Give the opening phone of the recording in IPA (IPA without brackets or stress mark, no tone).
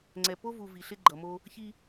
ŋ͡ǀ